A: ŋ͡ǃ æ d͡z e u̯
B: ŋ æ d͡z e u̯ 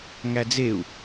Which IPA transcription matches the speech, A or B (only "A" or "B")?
B